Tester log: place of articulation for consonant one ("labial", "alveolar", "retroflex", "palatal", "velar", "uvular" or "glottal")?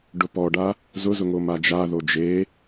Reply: retroflex